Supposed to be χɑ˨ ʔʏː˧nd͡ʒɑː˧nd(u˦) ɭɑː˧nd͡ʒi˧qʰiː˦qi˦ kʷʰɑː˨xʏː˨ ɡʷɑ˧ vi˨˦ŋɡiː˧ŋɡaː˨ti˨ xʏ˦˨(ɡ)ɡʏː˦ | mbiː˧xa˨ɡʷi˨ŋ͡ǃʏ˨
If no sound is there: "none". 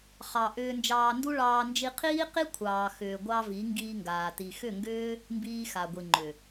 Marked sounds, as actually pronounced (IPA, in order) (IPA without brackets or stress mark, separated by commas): u˦, ŋ